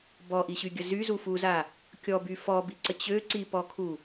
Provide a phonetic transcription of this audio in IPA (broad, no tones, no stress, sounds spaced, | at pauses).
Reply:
b ɔ ʔ i ɕ y ɡʲ ə z y z u f u z a | kʲ ɔ b y f ɔ b i ǀ ə t͡ɕ ø ǀ i p ɔ kʰ u